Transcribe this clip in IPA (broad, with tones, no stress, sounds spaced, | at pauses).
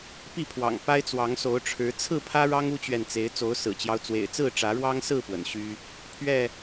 p i˥˨ pʰ w ɑ̰˨˩ ŋ p a˦ ɪ̯ t͡s w ɑ˨˦ ŋ s o˨˦ ʊ̯ ʈ͡ʂʰ ɻ̩˨˦ t͡sʰ ɹ̩˥˨ pʰ ä˦ ɻ ɑ˦ ŋ u˦ t͡ɕ ɥ ɛ˨ n t͡s e˨˦ ɪ̯ t͡s o˨˦ ʊ̯ s ɹ̩˨˩ t͡ɕ j ɑ˦ ʊ̯ t͡s w ḛ˨˩ ɪ̯ t͡s ɹ̩˥˨ ʈ͡ʂ ä˨˦ ɻ w ɑ˦ ŋ s ɹ̩˥˨ p w ə̰˨˩ n ɕ y˦ | pʰ ɥ ɛ˥˨